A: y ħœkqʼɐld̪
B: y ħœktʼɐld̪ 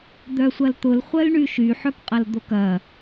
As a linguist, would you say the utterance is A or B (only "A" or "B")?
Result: A